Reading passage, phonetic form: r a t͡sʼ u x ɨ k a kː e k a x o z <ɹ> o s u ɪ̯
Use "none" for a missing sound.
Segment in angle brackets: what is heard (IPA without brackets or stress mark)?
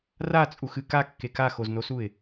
n